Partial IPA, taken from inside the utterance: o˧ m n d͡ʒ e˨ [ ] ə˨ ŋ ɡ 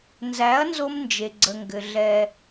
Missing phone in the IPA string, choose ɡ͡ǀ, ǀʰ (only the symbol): ɡ͡ǀ